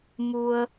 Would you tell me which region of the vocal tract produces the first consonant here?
lips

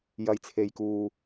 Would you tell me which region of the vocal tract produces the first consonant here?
palate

